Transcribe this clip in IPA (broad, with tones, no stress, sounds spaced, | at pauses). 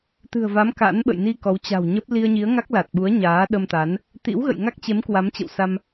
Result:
t̪ ɨ̤˨˩ ə̯ v a˨˦ m k a̰˧˥ n ɓ ə̰˧˨ j n i˧ k ɔ˨˦ w t͡ɕ a̤˨˩ w ɲ ə˦˥ p̚ l i˧ ə̯ ɲ i˨˦ ə̯ ŋ a˦˥ k̚ l a˨˩ t̚ ɓ u˨˦ ə̯ ɲ aː˨˦ ɗ ə˧ m t̪ a˨˦ n | t̪ ḭ˧˥ w ɣ ə̰˧˨ j ŋ a˦˥ k̚ t͡ɕ e˨˦ m k w a˨˦ m t͡ɕ ə̰˧˨ w s a˧ m